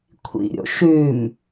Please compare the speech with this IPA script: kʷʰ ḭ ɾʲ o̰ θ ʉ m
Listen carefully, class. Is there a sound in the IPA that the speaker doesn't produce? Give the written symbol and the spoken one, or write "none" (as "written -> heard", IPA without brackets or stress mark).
θ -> ʃ